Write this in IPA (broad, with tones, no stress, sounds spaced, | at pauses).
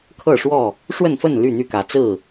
kʰ ɤ˥˨ ʂ w ɔ˥˨ | ʂ w ə˥˨ n f ə˥˨ n l y˥˨ n̪ y˥˨ k ä˨˦ t͡s ɹ̩˥˨